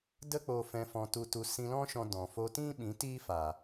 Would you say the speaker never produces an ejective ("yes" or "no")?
yes